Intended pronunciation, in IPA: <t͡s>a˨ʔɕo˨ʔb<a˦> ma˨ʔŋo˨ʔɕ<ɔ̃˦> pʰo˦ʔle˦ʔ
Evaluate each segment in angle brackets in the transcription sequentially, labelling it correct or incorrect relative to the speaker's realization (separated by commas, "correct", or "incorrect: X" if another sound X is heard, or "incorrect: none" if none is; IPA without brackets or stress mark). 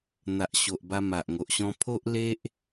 incorrect: n̪, incorrect: a˧, correct